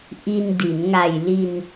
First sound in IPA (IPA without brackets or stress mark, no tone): ʔ